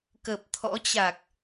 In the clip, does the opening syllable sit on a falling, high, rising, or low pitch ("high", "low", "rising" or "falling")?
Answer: low